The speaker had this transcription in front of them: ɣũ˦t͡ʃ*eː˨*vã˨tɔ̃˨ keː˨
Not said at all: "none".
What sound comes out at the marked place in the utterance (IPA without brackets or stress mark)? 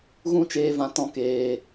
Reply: eː˧